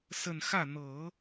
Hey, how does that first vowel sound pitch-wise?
falling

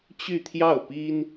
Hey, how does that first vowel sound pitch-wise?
falling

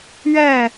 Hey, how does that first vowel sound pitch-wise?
falling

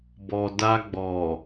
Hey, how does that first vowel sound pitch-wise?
low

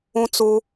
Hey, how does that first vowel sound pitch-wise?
high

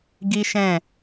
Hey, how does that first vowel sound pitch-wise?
high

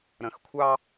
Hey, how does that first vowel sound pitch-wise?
low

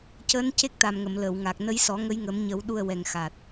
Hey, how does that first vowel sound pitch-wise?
rising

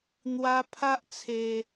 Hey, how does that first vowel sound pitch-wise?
high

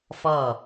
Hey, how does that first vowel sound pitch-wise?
falling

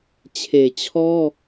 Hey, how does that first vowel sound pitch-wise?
low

